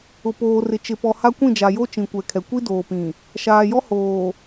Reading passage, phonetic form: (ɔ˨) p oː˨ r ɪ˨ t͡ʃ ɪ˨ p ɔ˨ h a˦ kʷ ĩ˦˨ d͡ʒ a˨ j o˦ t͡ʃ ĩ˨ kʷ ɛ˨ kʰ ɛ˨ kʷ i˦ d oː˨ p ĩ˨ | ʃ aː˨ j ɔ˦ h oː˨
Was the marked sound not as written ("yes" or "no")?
yes